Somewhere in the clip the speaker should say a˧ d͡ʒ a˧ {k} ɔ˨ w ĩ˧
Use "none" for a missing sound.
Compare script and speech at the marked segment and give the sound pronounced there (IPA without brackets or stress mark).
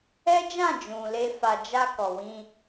k